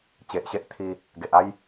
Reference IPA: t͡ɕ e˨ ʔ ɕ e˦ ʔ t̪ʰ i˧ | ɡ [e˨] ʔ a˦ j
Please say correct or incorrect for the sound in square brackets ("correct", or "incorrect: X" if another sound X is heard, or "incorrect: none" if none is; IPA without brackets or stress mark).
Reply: correct